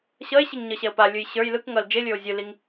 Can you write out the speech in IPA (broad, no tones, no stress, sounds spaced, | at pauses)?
ɕ ʌ e̯ ɕ i ŋ ɲ ʌ ɕ ɛ o̯ p a lʲ ɯ j ɕ ə˞ j l ɯ k ŋ ʌ l d͡ʒ e lʲ ə˞ o̯ zʲ ɯ l i ŋ